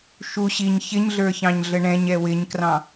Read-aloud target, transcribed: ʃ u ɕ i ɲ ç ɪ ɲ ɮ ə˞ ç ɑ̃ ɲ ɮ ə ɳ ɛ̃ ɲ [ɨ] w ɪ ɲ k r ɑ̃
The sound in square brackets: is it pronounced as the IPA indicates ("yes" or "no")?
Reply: no